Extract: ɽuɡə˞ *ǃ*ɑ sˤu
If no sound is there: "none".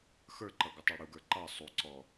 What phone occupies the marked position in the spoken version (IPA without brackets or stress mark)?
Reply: ǃ